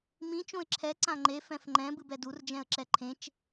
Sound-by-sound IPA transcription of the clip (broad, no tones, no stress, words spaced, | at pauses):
mĩ t͡ʃõɪ̯ǁʰɛ ǀãŋ͡ǃe fɛ̃fŋ͡ǃɛ̃ bɨbɛdur d͡ʒɛ̃ə̯ǁɛǃʰẽt͡ʃ